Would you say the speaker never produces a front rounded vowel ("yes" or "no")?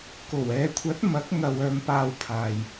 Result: no